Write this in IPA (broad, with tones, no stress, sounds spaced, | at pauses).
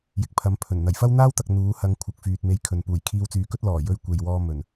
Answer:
j ɪ˨˥ k̚ pʰ ɐ˨˧ m pʰ ɵ˨˩ n n̪ ɐ˨˩ j f ɐ˥ w n̪ aː˥ w t̪ ɐ˨ k̚ n̪ uː˨˧ h ɐ˧ ŋ kʷʰ ɐ˨ k̚ f yː˨ t̚ m e˧ j kʰ ɵ˨ n p uː˨˩ j kʰ iː˧ w t͡s yː˨ k ɵ˥ t̚ l ɔː˨˩ j ɵ˧ ɥ kʷ e˨ j w ɔː˧ m ɵ˨˩ n